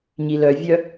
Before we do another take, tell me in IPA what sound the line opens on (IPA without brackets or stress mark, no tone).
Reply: ɲ